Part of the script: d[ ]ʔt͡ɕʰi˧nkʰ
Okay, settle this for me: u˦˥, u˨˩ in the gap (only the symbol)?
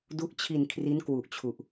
u˦˥